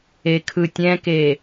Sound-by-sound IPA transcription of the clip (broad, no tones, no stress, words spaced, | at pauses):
ekʰɯtʲɛ̃ke